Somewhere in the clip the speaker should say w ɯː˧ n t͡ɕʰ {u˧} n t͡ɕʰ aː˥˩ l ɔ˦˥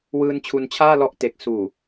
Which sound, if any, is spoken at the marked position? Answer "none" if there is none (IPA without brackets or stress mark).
u˧